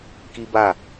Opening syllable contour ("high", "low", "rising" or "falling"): high